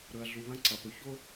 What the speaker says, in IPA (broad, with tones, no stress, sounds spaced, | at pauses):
ɾ ɵ˨ ɐ̯ ɮ u˨ β ɐ̃˦ ǀ ɐ˨ p ɵ˨ ç o˦